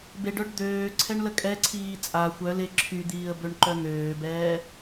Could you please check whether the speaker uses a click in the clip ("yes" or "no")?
yes